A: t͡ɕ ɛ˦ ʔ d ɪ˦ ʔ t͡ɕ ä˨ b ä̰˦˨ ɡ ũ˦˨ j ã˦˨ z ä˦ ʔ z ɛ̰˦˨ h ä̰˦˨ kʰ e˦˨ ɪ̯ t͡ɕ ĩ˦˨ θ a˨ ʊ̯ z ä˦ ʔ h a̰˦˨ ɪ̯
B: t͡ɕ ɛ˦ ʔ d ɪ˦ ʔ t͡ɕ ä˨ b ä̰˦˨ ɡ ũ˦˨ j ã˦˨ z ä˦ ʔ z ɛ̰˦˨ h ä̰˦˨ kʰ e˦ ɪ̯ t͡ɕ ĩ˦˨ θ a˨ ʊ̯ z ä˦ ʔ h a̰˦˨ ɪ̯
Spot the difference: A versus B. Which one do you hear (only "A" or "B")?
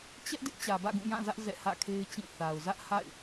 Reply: B